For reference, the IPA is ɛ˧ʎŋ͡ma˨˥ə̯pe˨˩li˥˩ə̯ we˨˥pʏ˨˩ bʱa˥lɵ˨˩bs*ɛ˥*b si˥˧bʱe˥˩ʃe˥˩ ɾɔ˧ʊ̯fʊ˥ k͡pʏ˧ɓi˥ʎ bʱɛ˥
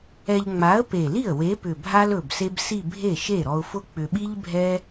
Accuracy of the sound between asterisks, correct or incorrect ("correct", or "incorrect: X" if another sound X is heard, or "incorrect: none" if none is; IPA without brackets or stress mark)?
incorrect: e˥